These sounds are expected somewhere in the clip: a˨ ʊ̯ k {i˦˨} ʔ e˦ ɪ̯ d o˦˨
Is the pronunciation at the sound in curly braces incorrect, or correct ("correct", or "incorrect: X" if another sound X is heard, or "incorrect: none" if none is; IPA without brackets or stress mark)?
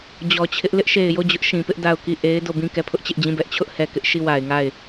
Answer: correct